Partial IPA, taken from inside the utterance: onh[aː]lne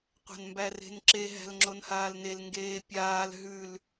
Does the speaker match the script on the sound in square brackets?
yes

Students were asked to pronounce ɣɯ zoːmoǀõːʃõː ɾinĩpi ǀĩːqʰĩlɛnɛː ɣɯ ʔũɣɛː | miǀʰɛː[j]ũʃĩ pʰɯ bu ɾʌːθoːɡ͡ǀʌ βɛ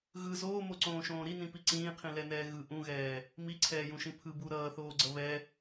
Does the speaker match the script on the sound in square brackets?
yes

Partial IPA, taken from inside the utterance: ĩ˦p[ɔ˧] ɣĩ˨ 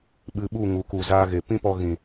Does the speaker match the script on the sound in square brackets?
yes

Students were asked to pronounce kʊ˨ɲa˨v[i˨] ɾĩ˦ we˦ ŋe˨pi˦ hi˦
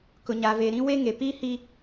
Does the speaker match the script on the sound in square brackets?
no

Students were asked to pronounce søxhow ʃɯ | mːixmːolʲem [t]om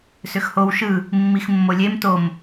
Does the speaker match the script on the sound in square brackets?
yes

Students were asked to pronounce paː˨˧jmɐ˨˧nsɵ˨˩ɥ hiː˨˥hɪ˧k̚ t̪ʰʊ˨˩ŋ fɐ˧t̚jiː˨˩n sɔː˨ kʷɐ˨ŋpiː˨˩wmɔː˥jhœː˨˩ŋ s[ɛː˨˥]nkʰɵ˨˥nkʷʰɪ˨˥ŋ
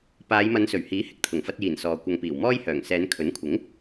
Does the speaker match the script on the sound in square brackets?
no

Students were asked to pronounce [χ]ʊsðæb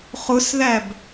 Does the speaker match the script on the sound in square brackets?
yes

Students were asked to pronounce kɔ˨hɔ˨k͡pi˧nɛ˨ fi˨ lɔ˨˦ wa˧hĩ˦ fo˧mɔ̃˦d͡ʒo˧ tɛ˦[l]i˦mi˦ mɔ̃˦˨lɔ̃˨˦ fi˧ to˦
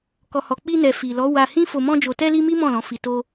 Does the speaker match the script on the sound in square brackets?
yes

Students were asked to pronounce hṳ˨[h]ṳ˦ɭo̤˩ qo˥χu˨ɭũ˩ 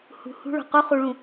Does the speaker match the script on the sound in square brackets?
yes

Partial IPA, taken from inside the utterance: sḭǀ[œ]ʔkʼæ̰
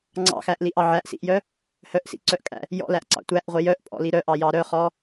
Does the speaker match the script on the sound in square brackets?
yes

